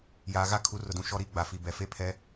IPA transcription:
j aː˨ ɣ a˦ kʰ u˨˦ r ʊ˨ d ũ˨ ʃ ɔ˦ ɾ i˦˨ ɡ͡b a˨ f i˨ b ɛ˨ f e˦ pʰ ɛ˨˦

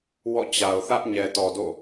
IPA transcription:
w ɔ̰˦˨ t͡ɕ a˨ ʊ̯ θ ä˦ ʔ ɲ ɛ˨ t ɔ˨ d o̰˦˨

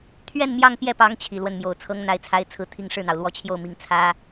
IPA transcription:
t̪ʰ ɥ ɛ˥˧ n m j ɑ˥˧ ŋ p j ɛ˥˩ p ɑ˧˥ ŋ t͡ɕʰ i˨˩ l w ə˥˩ n m j o˨˩ ʊ̯ t͡sʰ ɤ˥ ŋ n̪ a˧˥ ɪ̯ t͡sʰ a˧˥ ɪ̯ t͡sʰ ɹ̩˥ t̪ʰ i˥ ŋ ʂ ɻ̩˥˩ n̪ ɑ˩ ʊ̯ l w ɔ˥˧ t͡ɕʰ j o˥˩ ʊ̯ m i˨˩ ŋ t͡sʰ ä˥

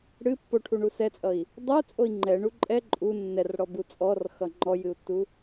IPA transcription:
ɽ ɨ pː o ʈʰ u ɳ u s ɛ t͡sʼ ʌ i̯ | dˤ ɨ u̯ t͡sʼ o i̯ ŋ͡ǃ ɛ ɳ u ǃʼ ɛ ǃʼ u nː ɛ r ɽ ɔ b u t͡sʼ ɔ r x ʌ ŋ͡ǃ ɔ j ɨ u̯ tː u

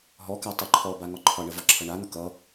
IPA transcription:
ɦ ɔ k a tˤ ɛ ǃʰ ɔ b a ŋ ɒ ǃʰ ɒ ɳ ə v ɒ ǁʰ ʌ ɳ a n̪ ʌ k ʌ

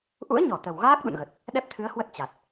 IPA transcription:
ʔ ṵ˧˥ ə̯ ɲ ɔ˧˩ t̪ ə˨˩ w ɣ aː˦˥ k̚ ɗ ṵ˧˨ n ɣ ə˨˩ t̚ | ɗ ɛ˦˥ p̚ t̪ʰ ɨ˨˦ ə̯ h w ə˦˥ t̚ t͡ɕ a˨˩ t̚

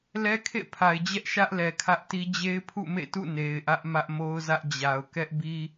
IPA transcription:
l ɛ˦ kʰ ḛ˦˨ pʰ a˨ ɪ̯ d͡ʑ ɛ˦ ʔ ʃ ä˦ ʔ l ɛ˨ kʰ ä˦ ʔ t i˦ d͡ʑ e˦ ɪ̯ pʰ ṵ˦˨ m ḛ˦˨ t ṵ˦˨ n e˨ ɪ̯ ʔ ä˦ ʔ m ä˦ ʔ m o˦ ʊ̯ z ä˦ ʔ d͡ʑ a˨ ʊ̯ k ɛ˦ ʔ b i˦

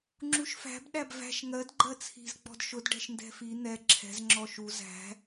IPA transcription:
ŋ͡ǁ u ʃ f æ̤ b ɗ æ b v æ̤ ʃ ŋ ɜ d ɡ͡ǃ ɜ t͡sʰ i̤ z ɡ͡b ɔ̤ d ʃ ʊ d ɖ ɛ̤ ʃ n d ɛ̤ f i n̪ ɛ ǁʰ ɛ̤ z ŋ͡ǁ ɔ ʃ u z æ̤

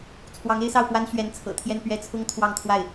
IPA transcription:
t͡sʰ w ɑ˧˥ ŋ e˥ ɪ̯ s ɑ˥˩ ʊ̯ p w a˥ n ɕ ɥ ɛ˧˥ n t͡sʰ ɤ̰˨˩ t̪ʰ j ɛ˥˧ n p ɥ ɛ˥˩ t͡sʰ ʊ˥ ŋ t̪ʰ w ɑ˥˧ ŋ t̪ʰ w a˥˩ ɪ̯

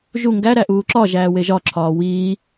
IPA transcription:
ʒ u ŋ ɡ æ ɾ æ ʔ uː ǁ ɒ ʒ æː w e ʒ ɒ ǁʰ ɒː w iː

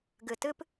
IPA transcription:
ɡ ɨ˨ t ɨ˦ p

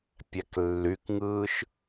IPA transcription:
pʲ æ k lː y k ŋ ɯː ʃ

